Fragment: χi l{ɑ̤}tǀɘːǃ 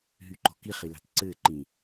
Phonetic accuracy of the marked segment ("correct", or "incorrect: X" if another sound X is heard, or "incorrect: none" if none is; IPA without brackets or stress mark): correct